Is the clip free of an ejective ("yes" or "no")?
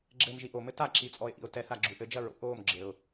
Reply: no